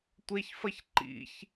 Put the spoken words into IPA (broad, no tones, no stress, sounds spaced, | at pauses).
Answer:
tʷ e ç f ɐ ç ǃ ḭ ç